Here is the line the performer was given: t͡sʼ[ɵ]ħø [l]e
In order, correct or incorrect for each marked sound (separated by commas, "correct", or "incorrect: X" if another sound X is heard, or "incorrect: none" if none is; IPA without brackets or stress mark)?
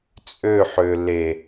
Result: incorrect: ø, correct